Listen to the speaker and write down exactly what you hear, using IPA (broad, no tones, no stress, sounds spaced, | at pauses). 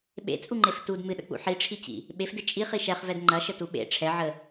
ɓ ḛ t͡sʼ u ŋ͡ǃ e f t u d m ɨ ɗ ə̰ k͡p ṵ ħ i ʈ͡ʂʰ i t͡ɕ ḭ | ɓ e f d ɨ t͡ʃʼ i χ i ʃ ɛ χ v ɛ d ŋ͡ǃ ɐ ʃ ə t u ɓ ḛ ʈ͡ʂʰ ɛ ʕ ə